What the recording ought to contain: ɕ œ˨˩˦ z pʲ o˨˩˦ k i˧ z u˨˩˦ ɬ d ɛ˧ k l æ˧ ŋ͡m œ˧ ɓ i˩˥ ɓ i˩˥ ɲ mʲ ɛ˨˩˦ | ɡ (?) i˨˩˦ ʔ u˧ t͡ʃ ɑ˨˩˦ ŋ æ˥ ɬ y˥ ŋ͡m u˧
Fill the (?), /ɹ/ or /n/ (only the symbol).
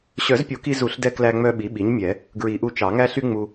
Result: ɹ